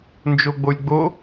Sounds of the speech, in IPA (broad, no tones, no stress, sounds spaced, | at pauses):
n d͡ʒ o ɡ͡b o lʲ ɡ͡b o